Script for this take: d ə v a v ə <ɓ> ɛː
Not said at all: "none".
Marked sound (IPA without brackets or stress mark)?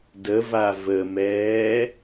m